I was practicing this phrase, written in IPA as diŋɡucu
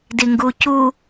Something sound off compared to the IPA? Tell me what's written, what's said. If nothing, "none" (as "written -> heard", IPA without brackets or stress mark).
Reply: none